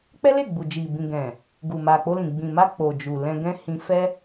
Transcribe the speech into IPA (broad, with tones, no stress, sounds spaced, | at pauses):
k͡p ɛ˦ l e˦˨ ɡ͡b u˨ d͡ʒ i˨ b ĩ˨ ɡ ɛ̃˨ | ɡ u˨ m a˨ k͡p o˧ l ĩ˨ ɡ͡b ĩ˨ m a˧ k͡p o˨ d͡ʒ u˨ l ɛ̃˧ ɡ ɛ̃˦ h ĩ˧ f ɛ˦